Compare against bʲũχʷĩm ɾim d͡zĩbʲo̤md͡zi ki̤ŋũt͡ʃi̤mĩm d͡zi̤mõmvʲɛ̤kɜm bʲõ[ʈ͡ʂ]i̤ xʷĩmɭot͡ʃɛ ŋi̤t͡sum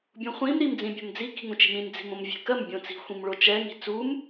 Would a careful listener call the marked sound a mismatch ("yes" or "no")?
yes